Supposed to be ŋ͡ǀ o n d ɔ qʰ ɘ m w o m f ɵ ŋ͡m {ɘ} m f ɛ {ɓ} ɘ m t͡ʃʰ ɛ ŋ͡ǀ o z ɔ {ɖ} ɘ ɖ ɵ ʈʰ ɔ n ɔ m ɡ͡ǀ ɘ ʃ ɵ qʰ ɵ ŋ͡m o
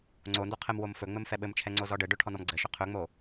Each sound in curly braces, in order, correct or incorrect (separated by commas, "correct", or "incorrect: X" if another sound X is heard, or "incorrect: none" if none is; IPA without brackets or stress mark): correct, correct, correct